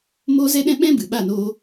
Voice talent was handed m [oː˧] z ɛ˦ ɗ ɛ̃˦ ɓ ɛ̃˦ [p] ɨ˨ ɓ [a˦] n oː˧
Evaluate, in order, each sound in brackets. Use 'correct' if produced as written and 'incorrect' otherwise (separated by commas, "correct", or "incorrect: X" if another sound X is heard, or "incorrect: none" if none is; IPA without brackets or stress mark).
incorrect: oː˦, incorrect: b, incorrect: a˦˨